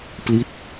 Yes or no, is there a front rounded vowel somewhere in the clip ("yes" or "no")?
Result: no